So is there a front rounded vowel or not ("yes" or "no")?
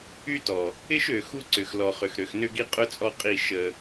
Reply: yes